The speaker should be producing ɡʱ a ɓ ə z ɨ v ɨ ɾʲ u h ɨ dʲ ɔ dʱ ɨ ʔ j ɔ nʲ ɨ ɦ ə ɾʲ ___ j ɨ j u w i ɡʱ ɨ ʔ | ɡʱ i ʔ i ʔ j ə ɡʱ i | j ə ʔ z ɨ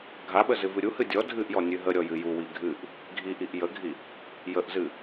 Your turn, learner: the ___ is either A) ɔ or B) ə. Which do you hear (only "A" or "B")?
A